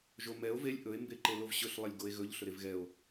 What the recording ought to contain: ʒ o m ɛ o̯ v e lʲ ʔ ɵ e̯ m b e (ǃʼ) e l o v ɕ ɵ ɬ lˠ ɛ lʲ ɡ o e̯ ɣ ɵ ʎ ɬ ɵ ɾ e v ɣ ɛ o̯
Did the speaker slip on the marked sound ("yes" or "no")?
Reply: yes